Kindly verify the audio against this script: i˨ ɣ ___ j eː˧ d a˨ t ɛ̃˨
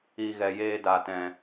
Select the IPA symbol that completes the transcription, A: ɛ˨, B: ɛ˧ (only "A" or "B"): A